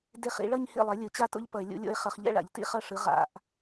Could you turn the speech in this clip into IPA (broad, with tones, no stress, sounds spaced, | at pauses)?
d e˥˩ χ ḭ˩˥ ɭ ʌ˥˧ ɲ h ḭ˥˩ lˠ ɛ˩˥ lʲ ɯ˧˩˧ t͡ɕ a˥˧ t o̰˥ ʎ p ʌ˧˩˧ e̯ lʲ ṵ˩˥ lʲ o̰˥˧ e̯ χ ʌ˧˩˧ χ ʎ ɛ̰˥˧ ɭ a̰˧˩˧ ʎ t ḭ˥˩ χ ʌ˥˩ ʂ ɯ˩˥ ʁ a̰˧˩˧ ʔ